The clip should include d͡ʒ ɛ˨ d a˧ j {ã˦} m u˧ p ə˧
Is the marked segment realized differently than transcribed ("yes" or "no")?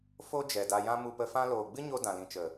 no